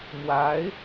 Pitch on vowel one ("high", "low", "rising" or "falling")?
rising